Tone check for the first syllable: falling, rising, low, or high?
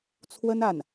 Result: high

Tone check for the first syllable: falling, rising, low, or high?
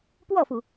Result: falling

